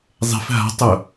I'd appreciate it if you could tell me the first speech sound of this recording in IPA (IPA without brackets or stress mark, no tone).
zˤ